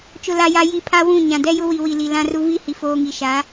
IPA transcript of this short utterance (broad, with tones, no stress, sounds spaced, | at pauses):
t͡ʃ ʊ˨ l a˨ j a˨ j i˨ pʰ a˦ w ũ˦˨ ɲ ã˨ d ɛ˦ j ʊ˦ w i˨ w i˨ l i˨ l ã˦ r u˦ v i˦ h i˨ f oː˦ ŋ i˨ ʃ a˨˦